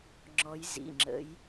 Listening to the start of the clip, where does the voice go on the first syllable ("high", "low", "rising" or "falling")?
rising